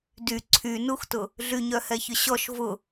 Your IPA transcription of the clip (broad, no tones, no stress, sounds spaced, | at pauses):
d y ǀʰ y n u x t ʊ | ɮ y ɲ œ h ɛ ç ʏ ɕ ɔ ʃ v ʊ